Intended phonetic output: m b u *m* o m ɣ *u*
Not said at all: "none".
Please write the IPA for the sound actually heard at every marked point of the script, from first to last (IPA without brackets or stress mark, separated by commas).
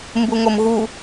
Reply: ŋ, u